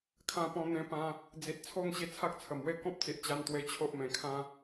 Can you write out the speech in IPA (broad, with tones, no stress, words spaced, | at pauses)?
kʰã˧ pɔ̃˧ n̪ẽ˧pã˧ | d͡zi˨t̚t͡sʰo˥˧ŋ ɕi˧t͡sʰa˦k̚t͡sʰə˨˩mwe˥˧ kɔ̃˦p̚t͡si˨ʔt͡ɕa˧n t̪we˧t͡ɕʰo˦ʔmẽ˨˩kʰã˦